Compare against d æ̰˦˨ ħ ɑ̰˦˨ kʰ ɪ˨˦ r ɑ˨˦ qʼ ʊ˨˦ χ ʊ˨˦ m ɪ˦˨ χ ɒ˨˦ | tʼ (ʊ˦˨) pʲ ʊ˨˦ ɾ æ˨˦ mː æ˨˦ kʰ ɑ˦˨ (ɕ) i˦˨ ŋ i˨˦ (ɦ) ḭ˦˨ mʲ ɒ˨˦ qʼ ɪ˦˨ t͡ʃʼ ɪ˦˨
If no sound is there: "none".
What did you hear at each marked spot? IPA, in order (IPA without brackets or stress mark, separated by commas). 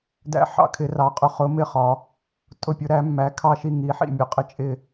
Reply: ʊ˦˨, ʃ, ħ